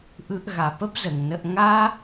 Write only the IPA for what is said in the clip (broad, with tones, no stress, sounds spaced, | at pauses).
ʔ ɯ˦ ʔ ɣ a˧ p ə˦ p z ə˨ ŋ n ə˧ ʔ ŋ a˦